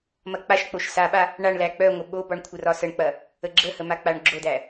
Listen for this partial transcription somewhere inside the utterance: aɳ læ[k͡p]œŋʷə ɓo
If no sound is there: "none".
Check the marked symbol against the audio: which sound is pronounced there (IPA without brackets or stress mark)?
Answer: k͡p